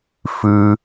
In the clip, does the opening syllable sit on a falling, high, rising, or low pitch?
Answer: high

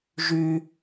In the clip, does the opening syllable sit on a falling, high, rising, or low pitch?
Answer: high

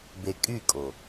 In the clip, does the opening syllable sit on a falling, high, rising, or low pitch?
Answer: low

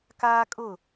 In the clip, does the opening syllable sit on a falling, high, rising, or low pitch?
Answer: high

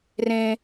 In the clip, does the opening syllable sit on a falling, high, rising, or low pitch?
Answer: high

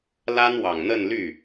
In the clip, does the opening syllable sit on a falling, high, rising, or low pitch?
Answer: high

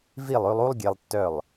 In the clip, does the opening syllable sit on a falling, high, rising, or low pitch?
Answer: falling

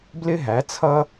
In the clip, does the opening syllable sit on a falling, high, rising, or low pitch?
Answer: high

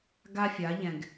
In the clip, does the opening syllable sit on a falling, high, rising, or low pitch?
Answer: high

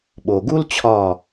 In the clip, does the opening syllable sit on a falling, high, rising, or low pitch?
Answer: low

